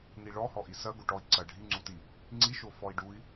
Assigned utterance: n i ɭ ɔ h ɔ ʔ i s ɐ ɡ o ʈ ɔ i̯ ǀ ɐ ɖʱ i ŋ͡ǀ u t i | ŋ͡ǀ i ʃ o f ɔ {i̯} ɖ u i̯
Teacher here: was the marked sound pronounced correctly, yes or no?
yes